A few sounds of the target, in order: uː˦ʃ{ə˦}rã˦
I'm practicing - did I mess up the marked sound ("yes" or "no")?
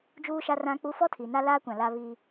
yes